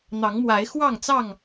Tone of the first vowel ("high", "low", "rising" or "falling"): rising